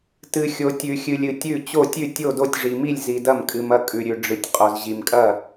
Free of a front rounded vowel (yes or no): yes